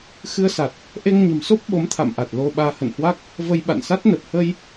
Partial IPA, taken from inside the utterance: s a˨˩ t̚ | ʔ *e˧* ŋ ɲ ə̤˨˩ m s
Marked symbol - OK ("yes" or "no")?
yes